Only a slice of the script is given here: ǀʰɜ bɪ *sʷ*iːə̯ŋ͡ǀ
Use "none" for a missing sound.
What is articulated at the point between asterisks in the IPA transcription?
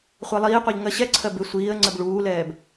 sʷ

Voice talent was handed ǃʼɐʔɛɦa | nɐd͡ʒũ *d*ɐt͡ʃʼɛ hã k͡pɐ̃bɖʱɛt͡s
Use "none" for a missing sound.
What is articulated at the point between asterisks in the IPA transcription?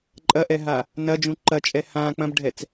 ǃ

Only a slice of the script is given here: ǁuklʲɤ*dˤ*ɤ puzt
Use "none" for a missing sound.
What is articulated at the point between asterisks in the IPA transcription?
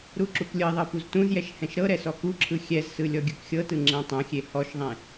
ðˤ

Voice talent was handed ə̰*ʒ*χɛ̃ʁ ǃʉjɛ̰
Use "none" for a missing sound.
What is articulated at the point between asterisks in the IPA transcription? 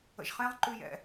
ʒ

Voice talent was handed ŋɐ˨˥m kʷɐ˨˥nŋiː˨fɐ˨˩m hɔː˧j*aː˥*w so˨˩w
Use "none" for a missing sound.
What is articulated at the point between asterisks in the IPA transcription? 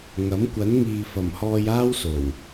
aː˥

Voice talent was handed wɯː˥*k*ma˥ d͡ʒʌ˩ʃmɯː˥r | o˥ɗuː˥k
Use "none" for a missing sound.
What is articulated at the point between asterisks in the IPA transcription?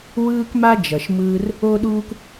k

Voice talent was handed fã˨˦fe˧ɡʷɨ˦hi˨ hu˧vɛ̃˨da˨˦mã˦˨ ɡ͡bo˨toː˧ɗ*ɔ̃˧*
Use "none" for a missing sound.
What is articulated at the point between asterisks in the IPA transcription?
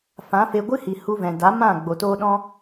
ɔ̃˧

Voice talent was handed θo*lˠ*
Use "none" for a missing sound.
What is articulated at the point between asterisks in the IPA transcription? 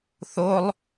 lˠ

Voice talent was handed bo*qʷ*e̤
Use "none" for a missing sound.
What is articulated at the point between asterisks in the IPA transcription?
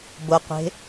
qʷ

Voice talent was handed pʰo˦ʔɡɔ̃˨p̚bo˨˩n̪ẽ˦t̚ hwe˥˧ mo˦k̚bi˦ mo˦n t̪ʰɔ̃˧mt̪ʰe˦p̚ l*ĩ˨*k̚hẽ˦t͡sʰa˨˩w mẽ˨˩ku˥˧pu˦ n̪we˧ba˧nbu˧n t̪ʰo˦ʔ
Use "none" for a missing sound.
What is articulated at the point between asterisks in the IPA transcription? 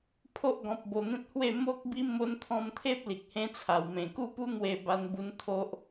i˨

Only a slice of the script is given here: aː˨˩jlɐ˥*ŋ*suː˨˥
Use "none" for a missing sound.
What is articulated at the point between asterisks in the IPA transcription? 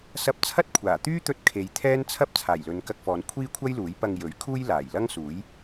ŋ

